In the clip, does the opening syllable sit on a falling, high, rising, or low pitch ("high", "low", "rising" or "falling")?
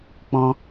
high